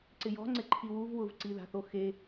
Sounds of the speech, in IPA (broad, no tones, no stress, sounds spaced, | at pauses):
ǀ ɪ j ɔ̤ ŋ͡ǀ ɪ ǃʰ i w u v w ʊ v ǀ i ð a̤ θ o x e